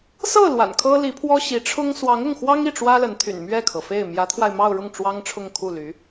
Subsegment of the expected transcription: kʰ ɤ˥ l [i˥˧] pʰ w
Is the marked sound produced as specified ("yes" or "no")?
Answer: no